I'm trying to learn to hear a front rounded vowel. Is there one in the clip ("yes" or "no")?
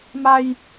no